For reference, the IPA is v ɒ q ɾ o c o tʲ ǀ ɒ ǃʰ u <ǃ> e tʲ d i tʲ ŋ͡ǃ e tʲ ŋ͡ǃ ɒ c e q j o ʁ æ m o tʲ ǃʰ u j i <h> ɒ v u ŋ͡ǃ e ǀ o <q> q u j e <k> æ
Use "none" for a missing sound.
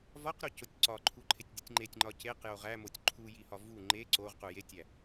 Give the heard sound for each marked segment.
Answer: ǃʰ, h, ʁ, tʲ

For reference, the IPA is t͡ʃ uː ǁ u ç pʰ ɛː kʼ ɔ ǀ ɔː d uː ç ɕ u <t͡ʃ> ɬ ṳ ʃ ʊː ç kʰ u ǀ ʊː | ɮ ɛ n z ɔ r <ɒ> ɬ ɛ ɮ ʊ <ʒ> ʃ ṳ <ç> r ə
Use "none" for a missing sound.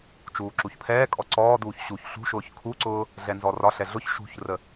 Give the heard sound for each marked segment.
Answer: ç, ɒ, ç, ç

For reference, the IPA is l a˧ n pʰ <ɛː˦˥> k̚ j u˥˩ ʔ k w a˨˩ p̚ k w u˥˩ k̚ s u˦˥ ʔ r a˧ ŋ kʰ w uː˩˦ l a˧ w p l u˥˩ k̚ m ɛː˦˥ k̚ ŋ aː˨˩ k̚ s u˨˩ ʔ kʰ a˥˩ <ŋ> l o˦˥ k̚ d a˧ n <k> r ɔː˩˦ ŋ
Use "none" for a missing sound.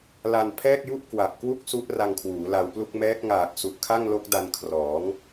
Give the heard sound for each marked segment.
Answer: ɛː˥˩, ŋ, kʰ

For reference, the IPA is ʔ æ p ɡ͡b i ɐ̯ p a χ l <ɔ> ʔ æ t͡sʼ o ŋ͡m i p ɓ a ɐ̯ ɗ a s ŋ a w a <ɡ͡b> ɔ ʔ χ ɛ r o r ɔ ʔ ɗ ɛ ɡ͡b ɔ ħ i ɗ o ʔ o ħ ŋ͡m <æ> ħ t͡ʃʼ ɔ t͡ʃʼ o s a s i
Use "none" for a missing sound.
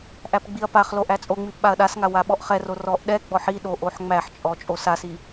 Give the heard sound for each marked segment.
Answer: o, ɓ, æ

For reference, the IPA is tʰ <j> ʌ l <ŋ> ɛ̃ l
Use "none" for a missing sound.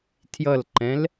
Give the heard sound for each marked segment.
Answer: j, ǃ

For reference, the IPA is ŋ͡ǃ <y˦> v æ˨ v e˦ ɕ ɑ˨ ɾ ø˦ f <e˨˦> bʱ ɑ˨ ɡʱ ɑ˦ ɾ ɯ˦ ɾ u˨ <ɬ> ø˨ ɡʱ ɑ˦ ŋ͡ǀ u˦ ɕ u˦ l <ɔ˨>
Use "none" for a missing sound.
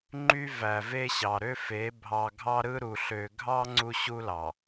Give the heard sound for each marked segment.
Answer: y˦, e˨˦, ɬ, ɑ˨

